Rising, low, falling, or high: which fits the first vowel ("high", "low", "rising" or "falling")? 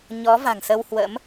rising